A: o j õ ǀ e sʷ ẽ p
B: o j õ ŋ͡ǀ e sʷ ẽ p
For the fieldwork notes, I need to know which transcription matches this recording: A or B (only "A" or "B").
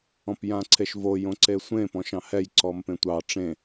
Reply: A